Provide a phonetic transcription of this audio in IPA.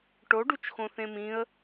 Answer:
ʈ o ɖ u t͡ʃ x õ θ ẽ m ĩ ə̯

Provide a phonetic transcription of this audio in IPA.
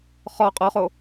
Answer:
χ ɔ qʼ ɔ χ o

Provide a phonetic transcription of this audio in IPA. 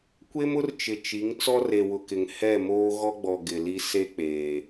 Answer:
kʷ e˦ m ʊ˦ r t͡ʃ ɪ˨ t͡ʃ i˨˦ ŋ t͡s ɔ˦ r e˨ w ʊ˨ k ɪ˨ ŋ h ɛ˦˨ m oː˦ ɣ ɔ˦ ɡ͡b ɔ˨ ɡ ɪ˨ l i˦ s e˦ k͡p eː˨

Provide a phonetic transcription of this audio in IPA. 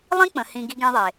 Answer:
lˠ ĩ˦ k͡p ə̃˨ h ĩ˧ ɡ i˧ ɡ ẽ˧ ðˤ e˨

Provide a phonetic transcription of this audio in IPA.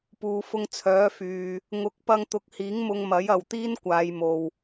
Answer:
p uː˨ f ʊ˧ ŋ t͡sʰ œː˨˥ f yː˨ | ŋ ʊ˨˥ k̚ p ɐ˧ ŋ t̪ ʊ˨˥ k̚ h iː˨˥ ŋ m ʊ˧ ŋ m ɐ˨˥ j ɐ˨ w t̪ iː˥ n kʷ aː˨˧ j m o˨ w

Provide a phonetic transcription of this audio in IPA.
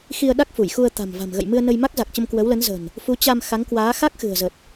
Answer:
x i˧ ə̯ ɗ a˦˥ k̚ f u˧˩ j x u˧ ə̯ t̪ a̤˨˩ m v a̤˨˩ m ɣ ə̰˧˨ j m ɨ˧ ə̯ n ə˧ j m a˦˥ k̚ z a˨˩ k̚ t͡ɕ ə˧ m k w ə˨˦ w l ə˨˦ n z ə̤˨˩ n | f u˨˦ t͡ɕ a˧ m x a˨˦ ŋ k w aː˨˦ x a˦˥ k̚ x ɨ̤˨˩ ə̯ z ə˨˩ t̚

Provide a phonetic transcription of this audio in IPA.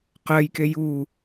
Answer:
q ɜ j k e j u

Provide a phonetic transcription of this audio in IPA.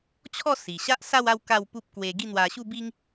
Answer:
t͡ɕʰ ɔ˥˧ s i˨˩ ɕ a˦ ʔ s a˥˧ w a˥˧ w k a˥˧ w p u˦ p̚ k w e˧ ɡ i˥˧ n̪ w a˧ ɕ u˥˧ b i˦ ŋ

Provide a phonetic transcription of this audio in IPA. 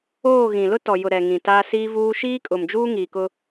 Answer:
oː˦˨ ɣ ĩ˨ l ʊ˦ t ɔ˨ j ʊ˨ ɾ ɛ˨ ŋ ĩ˨ t a˦ s iː˦ v uː˦ ʃ iː˦ kʼ ʊ˨ m d͡ʒ uː˦ ŋ iː˨ k ʊ˦

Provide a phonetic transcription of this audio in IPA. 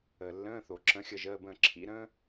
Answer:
əː˩ lː ə̃ː˧˥˧ θ o˩ ǁ ə̃˧˥˧ xʲ ə˥˨ ʒ əː˧˥˧ b ə̃ː˥˨ ǁʰ ḭ˧˥˧ ɾ ə̃ː˥

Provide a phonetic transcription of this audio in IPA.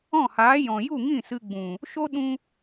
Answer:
ɔ̃˦˨ h aː˨˦ j ɔ̃˨ j u˦˨ ŋ ĩ˦˨ s ɨ˧ ɡ͡b ũ˨ | ʃ o˦ ɗ ũ˧

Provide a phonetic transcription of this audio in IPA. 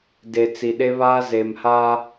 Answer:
d e˨ t͡s i˨ ɗ e˦ β aː˦ z e˨ m h a˦

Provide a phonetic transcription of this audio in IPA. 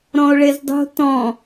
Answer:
ɾ ɔ̃ o̯ ɭ e z dˤ o̤ t ɔ̃

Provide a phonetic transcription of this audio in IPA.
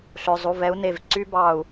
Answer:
ɬ ø˩˧˩ zˤ u˩˧˩ v ɛ˩˥ u̯ n e˧˩ v ǀ y˦˥ b ɑ˧˩ u̯

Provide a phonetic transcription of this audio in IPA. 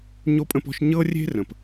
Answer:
ɲ o˧ pʼ ə̃˧ p ɔ̤˧ ʃ ɲ ɤ˧ rʲ e̤˧ r ə̃˩ p

